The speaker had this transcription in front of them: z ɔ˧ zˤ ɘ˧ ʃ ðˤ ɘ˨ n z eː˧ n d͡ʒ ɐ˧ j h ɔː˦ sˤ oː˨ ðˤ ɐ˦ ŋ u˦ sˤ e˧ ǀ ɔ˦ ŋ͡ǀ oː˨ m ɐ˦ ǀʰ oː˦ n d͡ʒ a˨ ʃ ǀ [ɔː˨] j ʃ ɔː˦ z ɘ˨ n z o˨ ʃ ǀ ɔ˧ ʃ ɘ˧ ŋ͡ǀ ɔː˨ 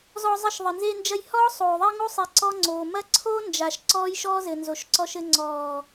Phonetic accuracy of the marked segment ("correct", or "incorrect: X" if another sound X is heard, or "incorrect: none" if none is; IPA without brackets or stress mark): incorrect: ɔː˦